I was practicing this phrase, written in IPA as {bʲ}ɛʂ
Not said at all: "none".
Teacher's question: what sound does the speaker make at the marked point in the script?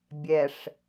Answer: bʲ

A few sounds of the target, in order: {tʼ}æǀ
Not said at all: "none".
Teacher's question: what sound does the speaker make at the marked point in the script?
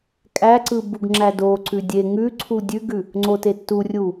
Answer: kʼ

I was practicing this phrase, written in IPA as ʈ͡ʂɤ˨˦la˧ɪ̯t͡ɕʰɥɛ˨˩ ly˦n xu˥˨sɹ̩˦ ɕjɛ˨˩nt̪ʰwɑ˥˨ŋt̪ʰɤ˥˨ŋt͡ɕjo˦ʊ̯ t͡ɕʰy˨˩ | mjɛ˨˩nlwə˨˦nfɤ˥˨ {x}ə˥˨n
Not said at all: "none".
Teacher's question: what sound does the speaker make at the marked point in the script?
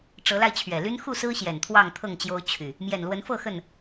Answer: x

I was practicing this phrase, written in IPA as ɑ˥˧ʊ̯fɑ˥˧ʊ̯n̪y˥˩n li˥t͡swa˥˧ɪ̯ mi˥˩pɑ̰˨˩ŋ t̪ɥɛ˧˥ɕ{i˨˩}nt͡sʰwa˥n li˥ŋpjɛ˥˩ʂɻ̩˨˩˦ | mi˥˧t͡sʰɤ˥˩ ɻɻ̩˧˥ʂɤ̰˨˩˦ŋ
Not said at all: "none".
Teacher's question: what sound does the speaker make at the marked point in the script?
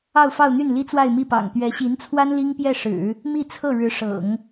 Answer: i˧˥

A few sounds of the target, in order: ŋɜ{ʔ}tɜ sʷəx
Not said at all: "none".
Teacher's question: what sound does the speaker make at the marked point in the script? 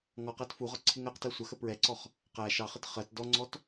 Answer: q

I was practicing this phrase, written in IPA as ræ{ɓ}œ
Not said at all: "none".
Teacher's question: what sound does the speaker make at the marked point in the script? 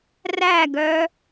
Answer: ɡ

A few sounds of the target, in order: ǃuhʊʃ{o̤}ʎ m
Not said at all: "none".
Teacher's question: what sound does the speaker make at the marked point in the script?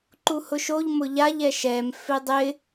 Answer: o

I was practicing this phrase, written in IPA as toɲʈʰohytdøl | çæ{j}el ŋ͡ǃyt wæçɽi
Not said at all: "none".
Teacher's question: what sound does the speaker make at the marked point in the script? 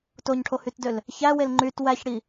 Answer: w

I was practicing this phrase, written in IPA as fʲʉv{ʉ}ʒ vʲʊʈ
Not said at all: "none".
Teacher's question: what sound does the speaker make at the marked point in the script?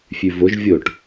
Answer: ʊ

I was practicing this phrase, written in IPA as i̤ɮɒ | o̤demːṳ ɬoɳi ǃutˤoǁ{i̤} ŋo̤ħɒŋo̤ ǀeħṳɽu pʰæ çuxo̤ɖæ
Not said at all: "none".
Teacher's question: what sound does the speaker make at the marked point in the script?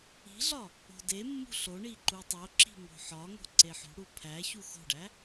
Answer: i̤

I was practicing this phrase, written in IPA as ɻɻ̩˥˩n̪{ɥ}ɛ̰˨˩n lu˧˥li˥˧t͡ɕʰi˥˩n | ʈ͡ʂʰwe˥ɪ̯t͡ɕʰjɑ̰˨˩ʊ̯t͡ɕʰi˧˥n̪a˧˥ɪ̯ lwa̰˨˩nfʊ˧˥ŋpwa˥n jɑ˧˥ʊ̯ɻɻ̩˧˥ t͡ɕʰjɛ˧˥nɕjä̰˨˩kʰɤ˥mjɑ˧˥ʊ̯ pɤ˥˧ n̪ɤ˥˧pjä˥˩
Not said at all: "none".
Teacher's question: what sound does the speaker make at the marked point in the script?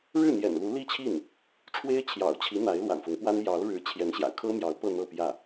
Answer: j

